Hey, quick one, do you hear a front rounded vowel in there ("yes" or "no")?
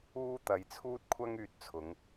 yes